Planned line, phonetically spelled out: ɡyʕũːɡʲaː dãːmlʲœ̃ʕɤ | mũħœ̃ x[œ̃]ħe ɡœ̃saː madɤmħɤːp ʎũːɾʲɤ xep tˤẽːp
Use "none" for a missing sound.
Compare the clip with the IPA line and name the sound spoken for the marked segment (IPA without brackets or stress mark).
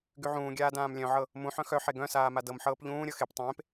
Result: œ